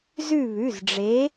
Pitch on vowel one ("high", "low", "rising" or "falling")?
falling